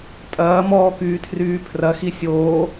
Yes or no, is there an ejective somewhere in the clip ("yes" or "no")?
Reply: yes